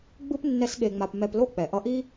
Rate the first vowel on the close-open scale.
close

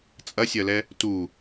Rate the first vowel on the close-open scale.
open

